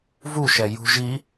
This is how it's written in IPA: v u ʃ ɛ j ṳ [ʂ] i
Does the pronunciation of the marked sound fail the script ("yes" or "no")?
yes